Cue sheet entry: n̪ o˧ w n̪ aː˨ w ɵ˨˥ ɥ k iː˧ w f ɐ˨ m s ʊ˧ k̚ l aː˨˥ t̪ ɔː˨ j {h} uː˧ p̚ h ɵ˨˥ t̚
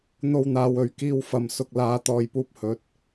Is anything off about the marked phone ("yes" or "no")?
yes